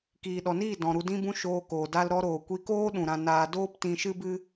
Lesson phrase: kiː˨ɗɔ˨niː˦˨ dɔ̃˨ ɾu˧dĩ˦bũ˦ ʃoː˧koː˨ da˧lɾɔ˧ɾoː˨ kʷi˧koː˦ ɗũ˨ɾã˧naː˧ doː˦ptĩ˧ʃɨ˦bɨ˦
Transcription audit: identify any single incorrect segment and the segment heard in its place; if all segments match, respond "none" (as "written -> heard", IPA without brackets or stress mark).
none